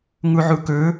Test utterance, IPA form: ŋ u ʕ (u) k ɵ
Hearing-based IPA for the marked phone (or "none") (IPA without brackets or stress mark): u